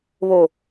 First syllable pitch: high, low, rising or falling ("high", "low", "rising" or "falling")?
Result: low